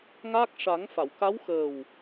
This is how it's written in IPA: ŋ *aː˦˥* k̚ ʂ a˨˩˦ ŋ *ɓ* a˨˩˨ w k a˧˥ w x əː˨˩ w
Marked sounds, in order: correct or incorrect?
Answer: correct, incorrect: f

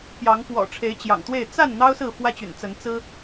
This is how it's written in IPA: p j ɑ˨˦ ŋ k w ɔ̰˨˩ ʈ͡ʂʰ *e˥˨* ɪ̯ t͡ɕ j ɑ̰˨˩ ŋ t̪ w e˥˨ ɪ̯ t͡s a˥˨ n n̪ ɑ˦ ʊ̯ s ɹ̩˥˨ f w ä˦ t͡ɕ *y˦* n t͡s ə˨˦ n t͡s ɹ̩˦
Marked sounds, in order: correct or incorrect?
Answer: incorrect: e˨˦, incorrect: y̰˨˩

